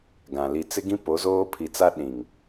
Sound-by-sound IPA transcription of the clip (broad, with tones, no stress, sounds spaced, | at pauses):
ɡ ã˨ l i˨ t͡s ɪ˦ ɡ ĩ˦ p o˨˦ z oː˦ pʰ i˨ t͡s a˦ ɗ ĩ˨ ŋ